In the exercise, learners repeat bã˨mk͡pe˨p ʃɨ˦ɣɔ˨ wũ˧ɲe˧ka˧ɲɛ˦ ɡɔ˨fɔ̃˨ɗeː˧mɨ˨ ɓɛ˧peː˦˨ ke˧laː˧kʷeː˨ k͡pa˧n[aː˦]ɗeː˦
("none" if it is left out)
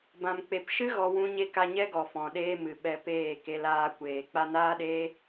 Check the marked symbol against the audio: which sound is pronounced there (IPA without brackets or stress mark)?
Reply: aː˦